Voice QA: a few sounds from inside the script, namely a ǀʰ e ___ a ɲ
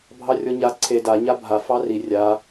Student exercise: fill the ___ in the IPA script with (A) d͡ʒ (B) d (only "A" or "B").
B